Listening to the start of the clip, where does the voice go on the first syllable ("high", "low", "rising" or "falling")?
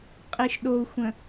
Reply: low